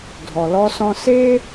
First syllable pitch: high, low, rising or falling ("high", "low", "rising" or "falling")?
low